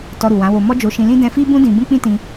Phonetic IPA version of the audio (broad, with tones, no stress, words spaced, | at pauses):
tɔ˧ɾu˨wã˨˦wo˧ mɔ˦d͡ʒo˧ʃĩ˧lĩ˦ dɛ̃˧fi˦bũ˦ dĩ˧ bũ˦k͡pĩ˦tĩ˧